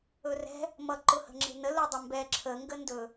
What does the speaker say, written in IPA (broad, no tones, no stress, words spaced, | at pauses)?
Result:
ɵrɛ̤ | mʌ ǃʊhə̤ŋ͡ǁe̤nə lʊdˤəmbɛ ǁʰə ŋɡəndɵ